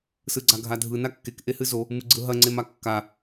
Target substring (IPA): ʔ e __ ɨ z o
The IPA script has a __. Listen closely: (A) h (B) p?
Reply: A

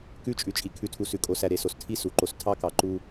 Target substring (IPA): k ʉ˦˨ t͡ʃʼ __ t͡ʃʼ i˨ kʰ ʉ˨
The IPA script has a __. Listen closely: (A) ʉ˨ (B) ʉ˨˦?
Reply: B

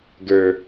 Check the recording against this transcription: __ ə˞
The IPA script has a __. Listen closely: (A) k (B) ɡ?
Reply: B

